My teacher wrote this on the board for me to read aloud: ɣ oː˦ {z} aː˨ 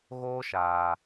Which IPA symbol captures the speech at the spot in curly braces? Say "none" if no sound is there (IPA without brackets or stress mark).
ʃ